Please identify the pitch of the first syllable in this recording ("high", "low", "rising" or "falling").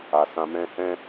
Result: low